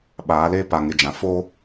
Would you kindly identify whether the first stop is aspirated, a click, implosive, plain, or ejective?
implosive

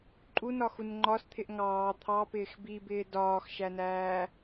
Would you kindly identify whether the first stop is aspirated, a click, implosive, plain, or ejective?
click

